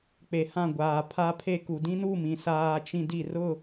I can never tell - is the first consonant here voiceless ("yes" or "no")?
yes